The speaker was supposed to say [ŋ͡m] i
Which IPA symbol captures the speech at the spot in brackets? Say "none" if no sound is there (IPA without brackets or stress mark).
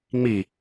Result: ŋ͡m